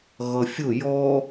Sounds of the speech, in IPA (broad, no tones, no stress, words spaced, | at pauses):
ɣʌfʲʊ jɔ